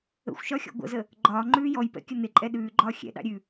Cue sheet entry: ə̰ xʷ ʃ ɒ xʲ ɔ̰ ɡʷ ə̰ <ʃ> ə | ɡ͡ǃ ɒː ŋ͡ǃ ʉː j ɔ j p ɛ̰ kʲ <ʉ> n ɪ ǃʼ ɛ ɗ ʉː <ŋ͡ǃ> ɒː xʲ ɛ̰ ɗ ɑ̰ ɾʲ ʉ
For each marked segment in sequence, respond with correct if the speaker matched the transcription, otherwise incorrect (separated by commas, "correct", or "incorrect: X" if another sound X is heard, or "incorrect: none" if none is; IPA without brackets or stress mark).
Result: incorrect: z, incorrect: ə, incorrect: ɡ͡ǃ